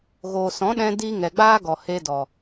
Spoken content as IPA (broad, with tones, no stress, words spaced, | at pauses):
ɣoː˨sɔ̃˨˦ɗɛ̃˧diː˧ ŋɛ˨ɡ͡baː˦ɡɔ˨ he˧dɔ˨